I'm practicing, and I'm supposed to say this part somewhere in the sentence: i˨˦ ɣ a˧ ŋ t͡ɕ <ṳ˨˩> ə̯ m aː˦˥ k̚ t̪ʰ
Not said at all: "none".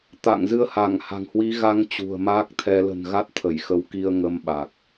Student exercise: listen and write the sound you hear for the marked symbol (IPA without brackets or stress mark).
ṳ˨˩